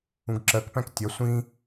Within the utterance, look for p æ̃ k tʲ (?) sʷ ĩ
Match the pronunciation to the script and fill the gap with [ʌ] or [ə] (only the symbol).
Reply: ʌ